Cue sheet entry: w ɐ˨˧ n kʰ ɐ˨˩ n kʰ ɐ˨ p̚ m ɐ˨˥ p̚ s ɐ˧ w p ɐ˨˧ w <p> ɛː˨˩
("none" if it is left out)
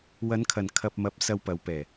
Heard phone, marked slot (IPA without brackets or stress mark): p